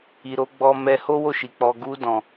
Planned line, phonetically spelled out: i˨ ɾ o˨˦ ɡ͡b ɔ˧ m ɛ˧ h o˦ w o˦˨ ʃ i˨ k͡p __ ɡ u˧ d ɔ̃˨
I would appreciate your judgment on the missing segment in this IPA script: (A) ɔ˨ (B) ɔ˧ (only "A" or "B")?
A